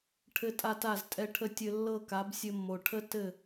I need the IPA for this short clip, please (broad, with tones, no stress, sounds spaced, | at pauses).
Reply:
ʈʰ ɘ˦ tʼ a˦ t a˦˨ z tʼ ɛ˧ ʈʰ ə˧ tʲ ɘ˧ lː ɤ˦˨ k a˨˦ b sʲ ɘ˧ mː o˨ ʈʰ ə˦ t ɘ˦˨